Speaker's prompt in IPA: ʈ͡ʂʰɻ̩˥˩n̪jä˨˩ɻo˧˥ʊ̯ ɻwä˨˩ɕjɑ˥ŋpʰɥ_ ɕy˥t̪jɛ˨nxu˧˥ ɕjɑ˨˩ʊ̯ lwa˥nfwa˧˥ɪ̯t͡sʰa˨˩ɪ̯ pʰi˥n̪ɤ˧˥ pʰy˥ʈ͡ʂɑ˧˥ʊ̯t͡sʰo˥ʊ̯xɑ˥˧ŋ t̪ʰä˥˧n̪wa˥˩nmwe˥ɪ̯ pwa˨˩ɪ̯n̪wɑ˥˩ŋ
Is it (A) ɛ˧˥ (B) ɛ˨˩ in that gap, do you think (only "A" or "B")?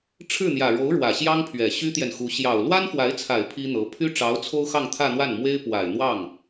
B